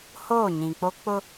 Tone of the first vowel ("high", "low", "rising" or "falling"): falling